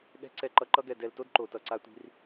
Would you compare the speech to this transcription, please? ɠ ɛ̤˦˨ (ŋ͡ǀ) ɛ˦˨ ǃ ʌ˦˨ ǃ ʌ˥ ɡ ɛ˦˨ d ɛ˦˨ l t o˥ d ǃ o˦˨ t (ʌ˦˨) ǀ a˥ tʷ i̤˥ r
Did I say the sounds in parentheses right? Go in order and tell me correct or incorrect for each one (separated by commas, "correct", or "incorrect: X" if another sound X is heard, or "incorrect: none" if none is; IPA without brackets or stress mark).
incorrect: ǀ, correct